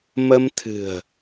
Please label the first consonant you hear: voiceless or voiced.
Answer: voiced